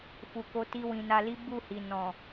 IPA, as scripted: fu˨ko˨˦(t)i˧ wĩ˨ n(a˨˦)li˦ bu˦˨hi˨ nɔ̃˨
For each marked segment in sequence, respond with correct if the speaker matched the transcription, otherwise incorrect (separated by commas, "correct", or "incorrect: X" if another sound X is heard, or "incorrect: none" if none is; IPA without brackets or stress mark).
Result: correct, incorrect: a˧